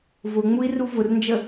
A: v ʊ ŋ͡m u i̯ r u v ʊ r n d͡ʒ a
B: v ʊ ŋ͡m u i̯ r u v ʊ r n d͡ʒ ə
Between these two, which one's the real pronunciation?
B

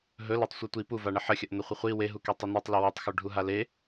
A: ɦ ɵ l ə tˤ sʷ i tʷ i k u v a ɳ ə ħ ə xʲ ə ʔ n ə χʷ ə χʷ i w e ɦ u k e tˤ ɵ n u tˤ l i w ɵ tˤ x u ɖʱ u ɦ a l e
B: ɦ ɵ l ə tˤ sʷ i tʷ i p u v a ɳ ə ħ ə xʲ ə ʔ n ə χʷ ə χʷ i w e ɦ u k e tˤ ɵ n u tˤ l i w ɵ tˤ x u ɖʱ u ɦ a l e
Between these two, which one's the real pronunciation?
B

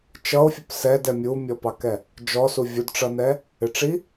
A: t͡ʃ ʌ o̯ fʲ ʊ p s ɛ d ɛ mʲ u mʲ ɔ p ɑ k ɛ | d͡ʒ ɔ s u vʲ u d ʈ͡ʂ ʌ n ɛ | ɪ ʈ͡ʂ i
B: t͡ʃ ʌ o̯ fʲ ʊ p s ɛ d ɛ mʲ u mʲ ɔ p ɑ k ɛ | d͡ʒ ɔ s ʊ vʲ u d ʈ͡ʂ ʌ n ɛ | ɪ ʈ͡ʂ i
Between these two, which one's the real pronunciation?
A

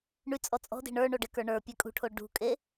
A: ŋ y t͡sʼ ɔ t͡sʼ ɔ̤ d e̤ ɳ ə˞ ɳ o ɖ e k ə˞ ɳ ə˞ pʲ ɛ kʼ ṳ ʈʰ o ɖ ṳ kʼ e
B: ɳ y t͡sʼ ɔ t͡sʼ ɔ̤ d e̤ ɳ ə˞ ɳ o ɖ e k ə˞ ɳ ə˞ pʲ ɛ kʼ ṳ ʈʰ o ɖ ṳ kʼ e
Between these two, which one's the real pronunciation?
B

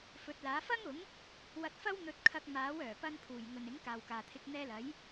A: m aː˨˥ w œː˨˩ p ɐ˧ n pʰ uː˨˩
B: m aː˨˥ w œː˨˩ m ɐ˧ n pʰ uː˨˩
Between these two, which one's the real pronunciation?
A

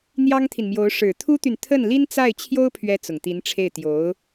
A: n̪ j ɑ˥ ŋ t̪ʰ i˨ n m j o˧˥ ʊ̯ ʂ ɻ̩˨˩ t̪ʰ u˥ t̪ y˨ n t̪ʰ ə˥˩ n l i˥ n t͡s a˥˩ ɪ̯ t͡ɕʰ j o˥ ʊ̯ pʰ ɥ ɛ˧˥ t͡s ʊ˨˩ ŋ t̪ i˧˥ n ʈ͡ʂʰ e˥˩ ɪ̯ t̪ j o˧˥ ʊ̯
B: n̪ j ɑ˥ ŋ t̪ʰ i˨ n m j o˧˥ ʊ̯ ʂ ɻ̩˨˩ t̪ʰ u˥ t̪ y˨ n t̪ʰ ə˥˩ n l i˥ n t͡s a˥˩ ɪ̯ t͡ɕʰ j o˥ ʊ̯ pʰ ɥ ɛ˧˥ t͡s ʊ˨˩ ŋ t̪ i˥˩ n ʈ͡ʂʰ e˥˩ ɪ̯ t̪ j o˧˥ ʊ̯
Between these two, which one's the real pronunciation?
A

